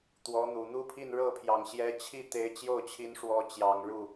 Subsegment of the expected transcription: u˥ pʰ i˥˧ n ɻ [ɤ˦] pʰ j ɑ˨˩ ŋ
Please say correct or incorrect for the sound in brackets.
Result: incorrect